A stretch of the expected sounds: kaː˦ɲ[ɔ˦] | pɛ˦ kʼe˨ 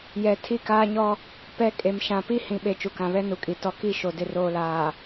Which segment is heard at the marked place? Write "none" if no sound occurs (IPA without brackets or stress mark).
ɔ˦